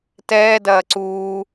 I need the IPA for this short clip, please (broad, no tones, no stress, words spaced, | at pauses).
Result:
tɛːdɐː ǀuː